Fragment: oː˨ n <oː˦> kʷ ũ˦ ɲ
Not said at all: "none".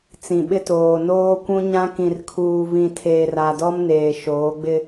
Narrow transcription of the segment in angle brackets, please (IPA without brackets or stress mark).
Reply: oː˦